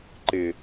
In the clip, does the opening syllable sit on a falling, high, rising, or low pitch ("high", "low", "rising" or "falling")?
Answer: low